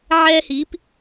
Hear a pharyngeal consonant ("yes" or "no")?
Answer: yes